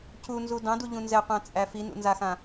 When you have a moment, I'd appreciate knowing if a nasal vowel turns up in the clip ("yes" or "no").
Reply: yes